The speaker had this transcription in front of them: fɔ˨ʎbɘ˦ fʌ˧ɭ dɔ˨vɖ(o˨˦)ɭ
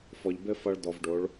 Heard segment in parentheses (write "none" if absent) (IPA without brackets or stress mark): o˨˦